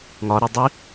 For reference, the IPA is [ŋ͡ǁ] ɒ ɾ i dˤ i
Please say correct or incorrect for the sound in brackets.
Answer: incorrect